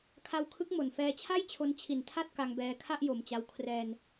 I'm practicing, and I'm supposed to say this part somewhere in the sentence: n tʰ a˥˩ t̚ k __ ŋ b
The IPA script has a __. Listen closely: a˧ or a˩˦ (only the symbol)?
a˧